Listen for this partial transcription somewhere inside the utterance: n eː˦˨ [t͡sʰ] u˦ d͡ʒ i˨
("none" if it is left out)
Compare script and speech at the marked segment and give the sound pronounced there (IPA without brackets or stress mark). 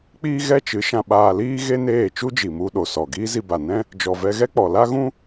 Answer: t͡ʃ